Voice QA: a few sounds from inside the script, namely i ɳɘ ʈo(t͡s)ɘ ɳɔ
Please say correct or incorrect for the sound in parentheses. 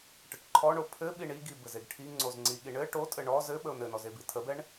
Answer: incorrect